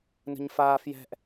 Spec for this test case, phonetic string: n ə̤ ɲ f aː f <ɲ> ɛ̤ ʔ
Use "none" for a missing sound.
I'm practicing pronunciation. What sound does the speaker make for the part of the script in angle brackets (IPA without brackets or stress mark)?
j